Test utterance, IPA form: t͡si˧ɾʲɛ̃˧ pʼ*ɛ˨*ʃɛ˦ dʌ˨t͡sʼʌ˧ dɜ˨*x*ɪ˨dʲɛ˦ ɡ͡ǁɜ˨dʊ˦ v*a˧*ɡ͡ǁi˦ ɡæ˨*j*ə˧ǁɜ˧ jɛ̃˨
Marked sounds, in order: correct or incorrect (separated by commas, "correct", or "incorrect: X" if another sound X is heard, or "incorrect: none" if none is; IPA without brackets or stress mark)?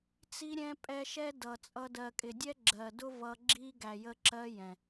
incorrect: ɛ˧, incorrect: kʼ, incorrect: ʌ˧, correct